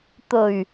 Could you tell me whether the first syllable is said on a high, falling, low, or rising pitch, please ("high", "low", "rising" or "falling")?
low